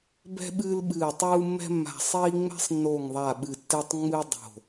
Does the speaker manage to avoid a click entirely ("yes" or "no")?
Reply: yes